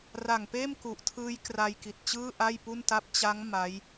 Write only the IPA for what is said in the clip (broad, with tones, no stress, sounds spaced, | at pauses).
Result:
r a˨˩ ŋ p eː˥˩ m k u˨˩ ʔ tʰ ɯː˦˥ j k r a˧ j k i˨˩ t̚ t͡ɕ ɯː˥˩ ʔ a˥˩ j p u˥˩ n t a˥˩ p̚ t͡ɕ a˦˥ ŋ m a˦˥ j